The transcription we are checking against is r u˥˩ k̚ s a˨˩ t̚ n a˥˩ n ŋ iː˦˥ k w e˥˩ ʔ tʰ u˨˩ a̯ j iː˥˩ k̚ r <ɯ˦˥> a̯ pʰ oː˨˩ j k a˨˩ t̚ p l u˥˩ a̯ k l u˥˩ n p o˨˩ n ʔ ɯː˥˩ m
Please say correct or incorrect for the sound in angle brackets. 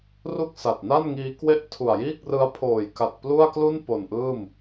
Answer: correct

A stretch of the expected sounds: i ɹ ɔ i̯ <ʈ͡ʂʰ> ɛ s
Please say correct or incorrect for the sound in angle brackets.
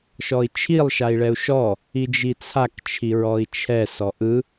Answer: incorrect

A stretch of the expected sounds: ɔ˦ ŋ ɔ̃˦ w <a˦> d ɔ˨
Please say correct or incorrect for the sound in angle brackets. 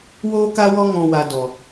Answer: incorrect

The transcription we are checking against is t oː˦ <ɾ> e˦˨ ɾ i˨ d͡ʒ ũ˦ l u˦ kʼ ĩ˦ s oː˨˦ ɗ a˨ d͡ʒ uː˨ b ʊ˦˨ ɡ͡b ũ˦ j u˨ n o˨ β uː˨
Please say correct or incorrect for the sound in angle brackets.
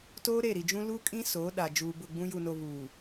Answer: correct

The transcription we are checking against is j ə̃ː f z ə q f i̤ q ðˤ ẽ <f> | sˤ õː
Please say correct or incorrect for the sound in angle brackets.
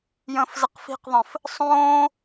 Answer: correct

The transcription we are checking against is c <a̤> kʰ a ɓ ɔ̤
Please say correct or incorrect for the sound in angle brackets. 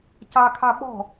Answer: incorrect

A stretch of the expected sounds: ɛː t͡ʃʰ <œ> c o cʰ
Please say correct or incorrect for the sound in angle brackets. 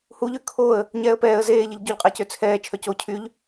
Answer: correct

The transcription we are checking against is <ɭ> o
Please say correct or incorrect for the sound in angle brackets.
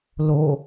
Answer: incorrect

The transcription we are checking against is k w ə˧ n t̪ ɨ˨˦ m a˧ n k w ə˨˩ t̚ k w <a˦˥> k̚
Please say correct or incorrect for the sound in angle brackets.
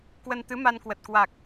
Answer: incorrect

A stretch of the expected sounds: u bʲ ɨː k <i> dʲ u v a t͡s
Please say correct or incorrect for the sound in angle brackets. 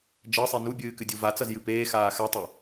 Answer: incorrect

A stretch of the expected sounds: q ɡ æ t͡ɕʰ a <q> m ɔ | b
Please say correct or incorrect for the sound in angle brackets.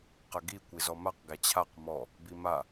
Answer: correct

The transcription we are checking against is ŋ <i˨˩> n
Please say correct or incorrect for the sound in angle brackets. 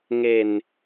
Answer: incorrect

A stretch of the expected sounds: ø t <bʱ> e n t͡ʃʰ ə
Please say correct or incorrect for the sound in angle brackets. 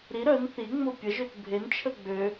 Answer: correct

